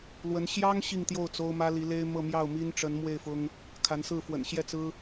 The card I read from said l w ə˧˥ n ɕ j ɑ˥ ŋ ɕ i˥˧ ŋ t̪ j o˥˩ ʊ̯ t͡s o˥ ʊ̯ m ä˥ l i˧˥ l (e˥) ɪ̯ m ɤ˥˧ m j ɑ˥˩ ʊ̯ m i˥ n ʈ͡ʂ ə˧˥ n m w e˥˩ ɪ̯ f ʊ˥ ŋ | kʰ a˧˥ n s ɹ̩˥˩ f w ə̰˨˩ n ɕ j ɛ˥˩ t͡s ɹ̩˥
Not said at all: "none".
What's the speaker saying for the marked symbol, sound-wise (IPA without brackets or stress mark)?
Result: e˥